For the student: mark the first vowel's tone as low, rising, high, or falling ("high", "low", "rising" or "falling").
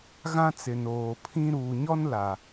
high